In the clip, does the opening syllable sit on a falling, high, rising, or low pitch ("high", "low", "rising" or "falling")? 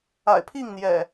low